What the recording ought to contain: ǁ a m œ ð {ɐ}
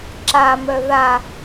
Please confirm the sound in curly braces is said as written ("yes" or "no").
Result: no